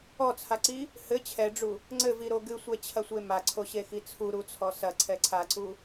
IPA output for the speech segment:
ɔ t͡sʰ a ǀ i | h ɘ t͡ɕʰ ɛ ɖ͡ʐ u | ŋ͡ǀ ɘ v i ɾ o ɡ ɨ sʷ ɛ t͡ɕʰ ɐ sʷ e m a ǀʰ o ɕ e x i t͡sʰ u ɾ u t͡sʰ ɔ s ɐ ǀʰ ɛ ǀʰ a ǀ u

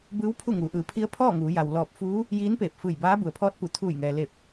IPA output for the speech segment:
b ɯː˧˥ w pʰ u˥˨ ŋ uː˩˧ ʔ ɯː˩ pʰ i˧˥ ə̯ pʰ ɔː˥˨ ŋ uː˩˧ j a˩ w l ɔː˧˩ p̚ f uː˧˥ | j iː˧˥ n p eː˧˩ p̚ f ɯː˧˩ j b aː˧˥ b u˩ ə̯ pʰ ɔː˧˥ t̚ p u˩˧ t̪ʰ uː˧˩ j ŋ ɛː˩ l e˧˩ p̚

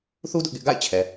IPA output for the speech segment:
θ u˦ d ʊ˦ ʔ ɡ ɪ˦ ʔ ɡ a̰˦˨ ɪ̯ t͡ɕʰ ɛ˨

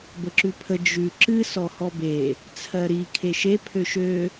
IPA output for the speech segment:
b ə ǁ ʉ pʰ ə d͡ʒ ʉ ǁ ɨ s ɔ h ɔ b e | t͡sʰ ɜ ɾ i kʰ e ʃ e pʰ ø ʃ ø

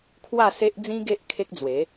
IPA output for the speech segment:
kʰ w a˥˧ s e˦ ʔ d͡z ĩ˦ ɡ e˦ ʔ kʰ e˦ k̚ d͡z w e˨˦

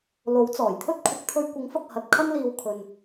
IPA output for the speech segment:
l o˨˥ w t͡s ɔː˨˩ j t̪ʰ ɵ˥ t̚ kʷʰ ɐ˨˥ k̚ t̪ʰ ɵ˧ ɥ kʷ ɪ˨˥ ŋ f ɐ˨ k̚ h ɐ˨˥ t̚ kʰ ɐ˥ n l iː˧ w kʰ ɵ˧ n

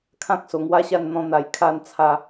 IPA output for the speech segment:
kʰ ã˦ k̚ s o˨˩ ŋ w a˦ ɕ a˥˧ n n̪ ɔ̃˧ n̪ a˧ j kʰ a˥˧ n t͡sʰ a˥˧

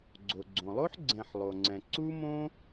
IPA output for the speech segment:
ɡ͡ǀ o˩ ɡ͡ǀ õ˩ lˠ o˥ ħ ɡ͡ǀ ɛ̃˨ ħ lˠ o˩ ŋ͡ǀ ɛ̃˩ ǀ u˥ m õ˥

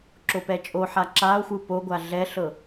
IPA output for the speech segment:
ǁ o p ɛ t͡ʃʼ o ħ a ǁ a o̯ xʷ ɯ p o ɡʷ a ɮ ɛ ɬ ɤ

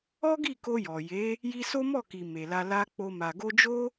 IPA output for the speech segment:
ɔ˦ ɡ i˦˨ k o˧ j ɔ˨ j e˨˦ | j i˧ s o˦ m ɔ˦˨ k i˨ m e˨ l a˧ l a˦ k͡p o˧ m a˨ ɡ o˧ d͡ʒ o˦

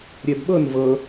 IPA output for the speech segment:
ɾʲ ɛ b ɓ ɤ n v ɤ

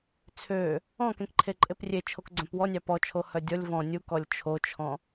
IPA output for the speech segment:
t͡sʰ ø | ɔ̃ k ẽ k ǃʰ e ǃʼ e p rʲ e t͡ʃʰ o k ɡ͡ǀ œ̃ p w ɔ nʲ ɑ p ɔ t͡ʃʰ o h œ dʲ ɔ lʲ v ɔ̃ nʲ u k ɔ lʲ t͡ʃʰ o t͡ʃʰ ɔ̃

